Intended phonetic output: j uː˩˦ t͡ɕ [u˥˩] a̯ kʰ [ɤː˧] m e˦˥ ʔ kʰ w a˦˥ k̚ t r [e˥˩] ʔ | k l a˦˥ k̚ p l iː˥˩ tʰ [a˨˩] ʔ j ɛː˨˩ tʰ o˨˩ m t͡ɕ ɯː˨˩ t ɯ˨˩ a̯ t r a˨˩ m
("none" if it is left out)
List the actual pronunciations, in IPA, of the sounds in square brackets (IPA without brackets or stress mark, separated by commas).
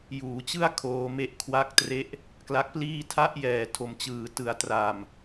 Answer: ɯ˥˩, oː˧, e˦˥, a˦˥